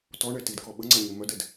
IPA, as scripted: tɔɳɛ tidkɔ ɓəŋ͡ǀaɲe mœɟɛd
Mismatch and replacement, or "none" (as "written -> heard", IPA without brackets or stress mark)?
ɟ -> d